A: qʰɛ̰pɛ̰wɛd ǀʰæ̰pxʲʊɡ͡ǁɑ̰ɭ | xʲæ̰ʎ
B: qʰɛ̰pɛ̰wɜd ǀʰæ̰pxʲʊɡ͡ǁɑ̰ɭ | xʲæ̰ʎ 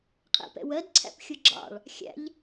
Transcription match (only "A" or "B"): B